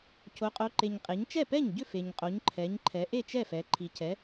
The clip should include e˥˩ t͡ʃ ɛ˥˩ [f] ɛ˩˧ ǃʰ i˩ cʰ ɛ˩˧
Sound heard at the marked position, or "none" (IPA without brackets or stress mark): f